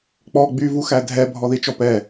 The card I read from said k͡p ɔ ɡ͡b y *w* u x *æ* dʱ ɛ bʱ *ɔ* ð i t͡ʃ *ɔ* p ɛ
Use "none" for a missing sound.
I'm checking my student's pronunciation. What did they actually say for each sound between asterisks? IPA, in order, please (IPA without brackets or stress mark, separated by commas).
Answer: v, æ, ɔ, ɔ